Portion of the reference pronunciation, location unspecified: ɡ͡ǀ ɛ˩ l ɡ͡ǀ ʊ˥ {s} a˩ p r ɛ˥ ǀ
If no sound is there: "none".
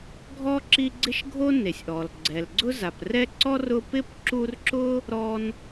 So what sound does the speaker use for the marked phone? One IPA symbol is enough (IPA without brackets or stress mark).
z